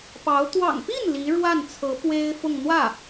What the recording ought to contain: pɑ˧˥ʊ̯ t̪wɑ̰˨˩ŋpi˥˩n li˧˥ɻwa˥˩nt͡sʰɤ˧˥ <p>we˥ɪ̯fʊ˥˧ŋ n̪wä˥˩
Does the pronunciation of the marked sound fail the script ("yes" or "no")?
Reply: no